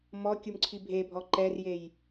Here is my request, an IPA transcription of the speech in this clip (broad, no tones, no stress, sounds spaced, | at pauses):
m ɔ kʲ u m ǀʰ i bʱ e bʱ ɔ ǃ ɛ r j e j